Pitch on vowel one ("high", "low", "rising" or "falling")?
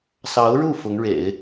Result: rising